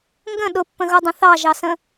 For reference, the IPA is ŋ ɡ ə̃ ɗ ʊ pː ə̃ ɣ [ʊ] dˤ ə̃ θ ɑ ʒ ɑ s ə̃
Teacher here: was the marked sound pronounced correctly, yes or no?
yes